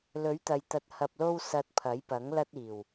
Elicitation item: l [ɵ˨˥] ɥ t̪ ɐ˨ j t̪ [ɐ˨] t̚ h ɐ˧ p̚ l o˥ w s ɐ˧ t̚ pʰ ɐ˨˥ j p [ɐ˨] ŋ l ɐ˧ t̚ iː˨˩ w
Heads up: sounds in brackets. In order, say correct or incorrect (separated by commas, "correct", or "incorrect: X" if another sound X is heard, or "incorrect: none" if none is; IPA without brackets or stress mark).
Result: correct, incorrect: ɐ˧, incorrect: ɐ˨˥